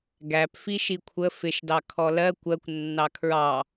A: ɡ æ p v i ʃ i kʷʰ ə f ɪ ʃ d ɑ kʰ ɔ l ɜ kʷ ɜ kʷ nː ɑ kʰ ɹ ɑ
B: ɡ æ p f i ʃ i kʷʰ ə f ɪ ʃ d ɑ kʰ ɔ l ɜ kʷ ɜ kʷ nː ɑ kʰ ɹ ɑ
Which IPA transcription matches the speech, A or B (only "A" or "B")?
B